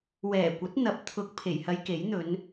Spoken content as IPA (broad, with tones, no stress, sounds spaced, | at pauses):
w ɛː˨˩ kʷ ɐ˨˥ t̚ n̪ ɐ˨˥ p̚ t̪ʰ ʊ˨ k̚ pʰ e˨˩ j h ɐ˧ j k e˨˥ j n̪ ɵ˨˧ n